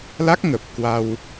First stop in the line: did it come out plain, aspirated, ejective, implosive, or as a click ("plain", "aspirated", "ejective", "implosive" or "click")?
plain